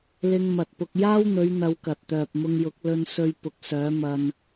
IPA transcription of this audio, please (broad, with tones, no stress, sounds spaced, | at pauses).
l ɪ˧ ŋ m ɐ˨ t̚ p ʊ˧ k̚ j aː˥ w n̪ ɵ˨˧ ɥ n̪ ɐ˧ w k ɐ˨ t̚ t̪ œː˨ p̚ m ʊ˧ ŋ j ʊ˨˥ k̚ l ɵ˧ n s ɵ˧ ɥ p ʊ˨ k̚ s œː˨˥ m ɐ˧ n